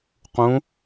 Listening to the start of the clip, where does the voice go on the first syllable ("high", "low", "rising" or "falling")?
rising